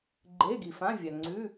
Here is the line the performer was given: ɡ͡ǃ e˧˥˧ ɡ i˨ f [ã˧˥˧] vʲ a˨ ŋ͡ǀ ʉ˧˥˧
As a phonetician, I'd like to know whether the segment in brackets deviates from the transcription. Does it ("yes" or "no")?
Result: no